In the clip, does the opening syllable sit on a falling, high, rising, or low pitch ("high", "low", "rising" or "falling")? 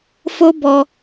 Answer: high